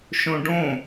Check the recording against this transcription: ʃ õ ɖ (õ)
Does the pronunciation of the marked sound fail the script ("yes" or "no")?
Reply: no